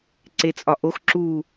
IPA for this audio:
ǀet͡sʼɒʔox ǁu

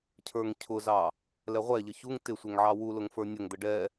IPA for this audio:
cʰə˞ŋcʰʊzɑ | lɛʁʷɛʎə çuŋ tɪsʷɛŋ ʕɑwulʊŋ fə˞nʲəŋd̪ə ɖɛ

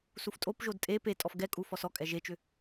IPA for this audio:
suftʼopʒod tʼe pe tʼɔfɡɛkʼu fɔsɔkʼɛ ʒet͡ʃʏ

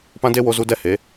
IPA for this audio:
pã˦de˦ wo˧zu˧ dɛ˦he˨˦

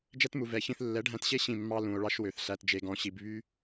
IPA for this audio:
d͡ʒɛ˦tmu˨vɛ˨çĩ˧θ lːɛ˨˦ɖʱæ̃˧tɕe˦ ɕĩ˦˨mːɑ˦ lũ˨o̯ ɭɑ˦ʃwø˨θɬæ˧t d͡ʒe˦ɡɔ̃˦ɕi˧b βy˦

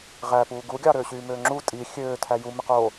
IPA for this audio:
ʁæ puːɡuɡʲɑ ɾøːɕyːmøːŋ͡ǁu tʼi xʲøːtʰæ jumeq o

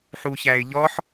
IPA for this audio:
ħuçæɪ̯ʎɔħ

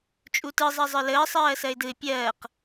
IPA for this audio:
t͡ʃʼutɯ zˤɜzˤə˞ləː sˤɜːsɜɪ̯dɯɪ̯ pʲɜːq

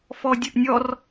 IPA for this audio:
fɔdʲɵʔnʲɔr

